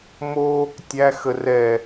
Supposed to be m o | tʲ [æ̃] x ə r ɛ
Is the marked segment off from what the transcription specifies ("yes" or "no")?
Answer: yes